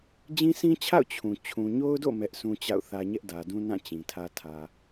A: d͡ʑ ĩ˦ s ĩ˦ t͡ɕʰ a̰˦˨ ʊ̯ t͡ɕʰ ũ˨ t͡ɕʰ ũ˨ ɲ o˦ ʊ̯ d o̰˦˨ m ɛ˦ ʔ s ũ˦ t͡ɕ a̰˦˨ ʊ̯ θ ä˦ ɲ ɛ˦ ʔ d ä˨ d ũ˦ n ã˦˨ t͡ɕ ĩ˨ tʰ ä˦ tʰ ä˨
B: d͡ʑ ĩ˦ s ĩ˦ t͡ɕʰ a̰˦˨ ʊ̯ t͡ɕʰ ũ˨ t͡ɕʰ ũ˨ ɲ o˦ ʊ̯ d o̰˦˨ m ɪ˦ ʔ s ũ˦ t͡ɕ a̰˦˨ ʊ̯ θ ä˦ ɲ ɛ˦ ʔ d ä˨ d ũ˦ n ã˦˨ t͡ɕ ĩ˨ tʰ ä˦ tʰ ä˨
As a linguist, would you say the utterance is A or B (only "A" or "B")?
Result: A